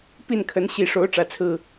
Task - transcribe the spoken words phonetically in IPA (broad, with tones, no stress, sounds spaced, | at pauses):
p i˥˨ n kʰ ə˨˦ n ɕ i˨˩ ʂ o˨˦ ʊ̯ ʈ͡ʂ ä˨˩ t͡sʰ ɹ̩˥˨